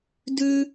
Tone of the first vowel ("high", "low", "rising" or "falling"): high